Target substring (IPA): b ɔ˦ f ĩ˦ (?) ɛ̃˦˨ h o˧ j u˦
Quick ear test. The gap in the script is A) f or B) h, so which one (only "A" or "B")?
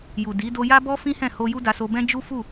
B